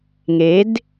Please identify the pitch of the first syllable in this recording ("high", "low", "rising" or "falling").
rising